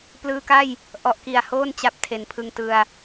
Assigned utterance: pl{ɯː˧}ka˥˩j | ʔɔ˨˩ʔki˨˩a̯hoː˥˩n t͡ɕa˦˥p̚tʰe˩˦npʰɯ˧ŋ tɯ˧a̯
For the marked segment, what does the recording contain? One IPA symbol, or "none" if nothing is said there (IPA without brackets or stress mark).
ɯː˧